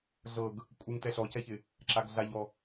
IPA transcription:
ɮ ɤ ɡ | kʷʼ ɪ ŋ t ɛ ɬ ɔ c ɛ ç ɪ | ǁ a ɡ ɮ a ʎ ɔ

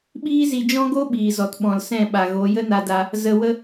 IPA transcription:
ɓ iː˦ z i˧ d͡ʒ ɔ̃˦ ɡ o˦ ɓ iː˨ z ɔ˨ t ɓ ɔ̃˨ l s ɛ̃˦˨ ɓ a˨ ɣ o˨˦ j ə˦ n a˧ d a˧ | z ə˧ w ə˦

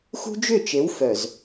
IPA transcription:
x ṳ˦ d͡ʒ ʏ˦˨ t͡ʃ e˨˦ w f œ˨ z

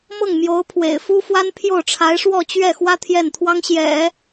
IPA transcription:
m ɤ˥˩ ŋ m j o˧˥ ʊ̯ pʰ w ḛ˨˩ ɪ̯ f u˥ f w a˥ n pʰ j o˥˩ ʊ̯ ʈ͡ʂʰ a˧˥ ɪ̯ ʂ w ɔ˥˧ t͡ɕ ɥ ɛ˥˩ x w ä˥ t̪ʰ j ɛ˥˩ n t̪ʰ w ɑ˥ ŋ ɕ j ɛ̰˨˩˦

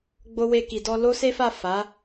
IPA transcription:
ɡ͡b o˧ w e˧ k i˨ d ɔ˧ l o˦ s e˦ f a˦˨ f a˨˦

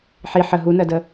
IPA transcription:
ħ i ħ ə ɦ u n ɜ d ə

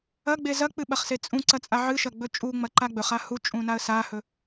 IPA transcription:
ɐ ɡ͡b e z ɐ k͡p ɨ ɓ ɐ χ s e t͡sʼ ũ ǀ ɐ t͡sʼ a ʕ ɨ ʃ ɐ ɡ͡b ɵ t͡ʃʼ u ŋ͡m ɐ ǃ a ɡ͡b ɵ χ a h u t͡ʃʼ ũ n a ə̯ s a h ɵ

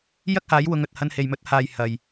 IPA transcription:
j ɐ˥ k̚ h aː˨˥ j w ʊ˨˧ ŋ ɵ˨ t̚ h ɐ˧ n h e˨ j m ɵ˧ t̚ h aː˨ j h ɐ˨ j

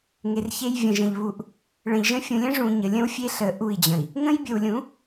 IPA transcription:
ŋ e˨ r ç e˦ j vʲ ə̃˨ ʒ ə̃˨ ʎ β u˨ ʔ | ɭ ə̃˨ ʎ ʒ ə̃˦ fʲ ũ˨ lʲ ə̃˦ ʐ ũ˨ ɲ ə˨ lʲ ə̃˦ w fʲ e˦ ɬ ə˨ ʔ u˦˨ i̯ d͡ʑ ə̃˨ i̯ | ŋ ə̃˦ j bʲ ə˨ w lʲ ũ˨˦

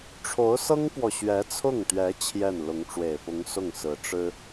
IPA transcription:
ʈ͡ʂʰ o˧˥ ʊ̯ s ɤ˥ ŋ p w ɔ˨ ɕ ɥ ɛ˧˥ t͡sʰ ʊ˥˩ ŋ t̪ ɥ ɛ˧˥ t͡ɕʰ j ɛ˥˩ n l ʊ˧˥ ŋ ʈ͡ʂ w e˨˩ ɪ̯ p ʊ˧˥ ŋ s ʊ˥˩ ŋ s ɹ̩˧˥ ʈ͡ʂ ɻ̩˥

